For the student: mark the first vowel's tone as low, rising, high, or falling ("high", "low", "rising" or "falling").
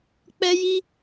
high